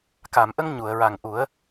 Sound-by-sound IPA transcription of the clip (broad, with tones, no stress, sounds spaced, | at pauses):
k a˨˩˨ m ʔ ə˧ ŋ ɲ u˨˩˨ ə̯ ɹ a˨˩ ŋ ʔ u˨˩˦ ə̯